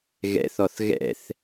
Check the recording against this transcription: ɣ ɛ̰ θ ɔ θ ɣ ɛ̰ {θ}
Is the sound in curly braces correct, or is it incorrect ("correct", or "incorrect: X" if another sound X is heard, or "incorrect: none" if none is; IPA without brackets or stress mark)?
correct